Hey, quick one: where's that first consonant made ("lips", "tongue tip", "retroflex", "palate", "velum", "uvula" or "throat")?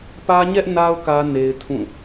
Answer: lips